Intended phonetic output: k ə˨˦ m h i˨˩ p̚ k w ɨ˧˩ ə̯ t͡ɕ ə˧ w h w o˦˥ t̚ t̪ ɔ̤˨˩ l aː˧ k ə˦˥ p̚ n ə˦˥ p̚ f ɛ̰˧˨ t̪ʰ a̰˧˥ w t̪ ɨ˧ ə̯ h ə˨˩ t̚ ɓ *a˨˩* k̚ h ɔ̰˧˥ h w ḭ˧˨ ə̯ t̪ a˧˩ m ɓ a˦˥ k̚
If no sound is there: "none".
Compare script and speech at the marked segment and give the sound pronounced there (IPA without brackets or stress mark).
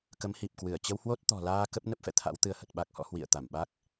a˦˥